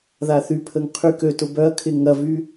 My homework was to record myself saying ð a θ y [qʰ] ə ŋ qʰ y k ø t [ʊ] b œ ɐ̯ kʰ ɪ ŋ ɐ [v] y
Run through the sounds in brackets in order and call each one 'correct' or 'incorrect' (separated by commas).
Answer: incorrect, correct, correct